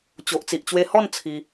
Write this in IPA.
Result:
t͡ɕ o˨ ʔ t͡s i˨ ʔ t͡ɕ w e˧ h ɔ˥˧ n t͡sʰ i˧

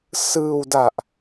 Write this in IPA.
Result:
s ɯː˧ w d a˨˩ ʔ

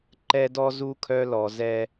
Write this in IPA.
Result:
ǃ ɛ˦ d ɔ˦ z u˦ kʰ œ˦ l ɔ˨ z ɛ˦

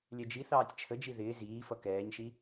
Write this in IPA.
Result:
lʲ ɛ d͡ʒ i θ ɑː tʲ t͡ʃʰ ə d͡ʒ i ð ɪː z iː f ʌ k ɛː ɲ ʃ i

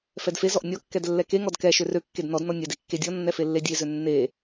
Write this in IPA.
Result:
f ɛ d f e z ɔ ʔ nʲ ɔ kː ɛ d lː ɛ k e ŋ ɔ d k ɛ ʃ ø r ø kː e d n ɔ d n ɔ nʲ ɛ d e kː e dʲ ɔ nː ɛ f e lː e dʲ e z ø nː e

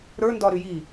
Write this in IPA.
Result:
ɾ ə˞ n d ɒ ɾ y j i

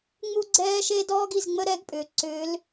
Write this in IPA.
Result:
ŋ͡m u˥ ɡ͡ǀ ɛː˥ ʃ e˥ d ɔː˥ ɡ i˩˧ z ŋ͡m ə˥ ɾ ɛ˧˥ ɡ pʼ ʏː˩ ǀ ʏː˧˥ l

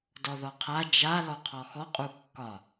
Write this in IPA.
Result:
d ɔ ð ɔ qʰ a d͡ʒ a l ɔ qʰ ɔ x ɔ qʼ u kː ɒ

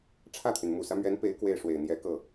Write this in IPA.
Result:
ʈ͡ʂʰ ä˥˩ t̪ʰ y˩ n m u˨˩ s ä˦ m ɥ ɛ˧˥ n p e˧˥ ɪ̯ k w e˥˩ ɪ̯ ʂ w e˨˩ ɪ̯ n̪ j ɛ˧˥ k ɤ˥˩

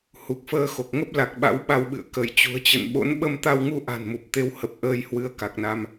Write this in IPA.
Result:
h u˨˩ k̚ f əː˧ x o˨˩ k̚ ŋ ə˦˥ p̚ l a˨˩ k̚ ɓ a̰˧˥ w ɓ a˧ w ɓ ɨ̰˧˨ ə̯ k ə˧˩ j t͡ɕ ṳ˨˩ ə̯ t͡ɕ ə̰˧˨ n ɓ o̰˧˥ n ɓ ə˧ m t̪ a˧ w ŋ u˧ ʔ a̤˨˩ n m u˨˩ p̚ t̪ e˨˦ w h ə˨˩ p̚ ʔ əː˧ j h w ɨ˧ ə̯ k a˨˩ k̚ n a˧ m

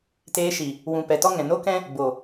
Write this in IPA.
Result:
t eː˧ ʃ i˨ | w ũ˨ p ɛ˨ t ɔ˦ ŋ ɛ̃˨ n o˦ k ɛ̃˦ | b o˨

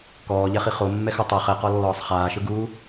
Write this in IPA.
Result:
k ɔː ʎ ɛ χ i χ o mː ɛ x u tˤ ɛ χ ɛ q ɔ lː ɔː sˤ χ aː ʃ ɯ ɡ uː

